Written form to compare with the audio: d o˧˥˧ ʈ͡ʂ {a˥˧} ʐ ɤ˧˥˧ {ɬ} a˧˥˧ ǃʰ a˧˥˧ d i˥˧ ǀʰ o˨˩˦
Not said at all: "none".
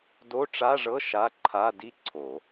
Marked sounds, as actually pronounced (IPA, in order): a˧˥˧, ʃ

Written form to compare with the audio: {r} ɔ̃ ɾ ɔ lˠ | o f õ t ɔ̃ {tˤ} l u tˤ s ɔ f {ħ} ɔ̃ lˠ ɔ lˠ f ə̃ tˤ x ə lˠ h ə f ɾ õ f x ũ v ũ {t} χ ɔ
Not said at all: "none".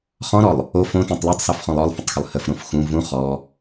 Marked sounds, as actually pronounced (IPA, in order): χ, tˤ, χ, none

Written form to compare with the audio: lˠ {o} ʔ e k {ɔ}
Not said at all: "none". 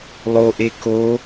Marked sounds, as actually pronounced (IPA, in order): o, o

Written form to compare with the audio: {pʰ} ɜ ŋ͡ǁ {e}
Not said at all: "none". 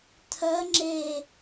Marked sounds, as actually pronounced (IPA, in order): tʰ, e

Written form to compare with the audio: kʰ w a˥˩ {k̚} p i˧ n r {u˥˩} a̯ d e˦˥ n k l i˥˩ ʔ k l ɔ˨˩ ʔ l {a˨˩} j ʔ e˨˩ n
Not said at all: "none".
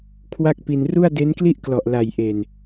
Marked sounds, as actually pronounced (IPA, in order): k̚, u˥˩, a˨˩

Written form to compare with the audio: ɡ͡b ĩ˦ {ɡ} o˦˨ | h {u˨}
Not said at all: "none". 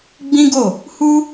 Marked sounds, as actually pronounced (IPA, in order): ɡ, u˦

